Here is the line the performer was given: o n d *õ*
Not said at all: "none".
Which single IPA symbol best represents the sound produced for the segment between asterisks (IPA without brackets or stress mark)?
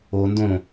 õ